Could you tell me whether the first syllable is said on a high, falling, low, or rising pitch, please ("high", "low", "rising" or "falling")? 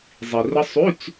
low